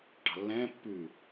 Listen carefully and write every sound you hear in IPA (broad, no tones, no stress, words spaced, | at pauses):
ʈɑ̤lːɛ̃ː pːʉ